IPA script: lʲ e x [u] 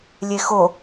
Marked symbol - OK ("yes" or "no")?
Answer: no